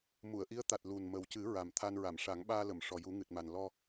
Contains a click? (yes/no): no